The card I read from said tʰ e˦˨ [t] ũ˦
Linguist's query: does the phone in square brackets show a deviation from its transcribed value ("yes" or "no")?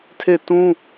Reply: no